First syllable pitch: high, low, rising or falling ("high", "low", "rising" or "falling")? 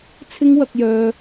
high